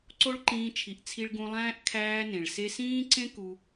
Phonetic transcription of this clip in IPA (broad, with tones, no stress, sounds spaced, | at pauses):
ǀ o˦ ɭ ǃ ĩː˧ t͡ʃʰ i˨ ʔ t͡sʰ i˧ ɭ ɡ ũ˧ lˠ æ̃ː˦ ʔ kʰ æː˦ n ẽ˨ ɭ s e˧ s ĩː˦ ǀ ẽ˦ k u˧